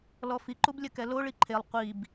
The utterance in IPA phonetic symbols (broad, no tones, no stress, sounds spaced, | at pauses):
l ɔ f i ǃ u b lʲ ɘ k ɛ l o ɭ i ǃʰ e lˠ qʷ i b